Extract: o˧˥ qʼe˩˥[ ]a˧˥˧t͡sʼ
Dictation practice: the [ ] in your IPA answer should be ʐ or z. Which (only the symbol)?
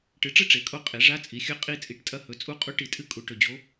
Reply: ʐ